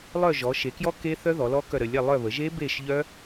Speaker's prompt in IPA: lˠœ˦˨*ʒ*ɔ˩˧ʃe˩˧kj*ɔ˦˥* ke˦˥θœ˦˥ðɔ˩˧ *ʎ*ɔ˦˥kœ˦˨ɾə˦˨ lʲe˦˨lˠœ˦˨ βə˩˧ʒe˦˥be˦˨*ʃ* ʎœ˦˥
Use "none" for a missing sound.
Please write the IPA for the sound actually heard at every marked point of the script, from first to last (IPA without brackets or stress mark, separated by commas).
ʒ, ɔ˦˥, l, ʃ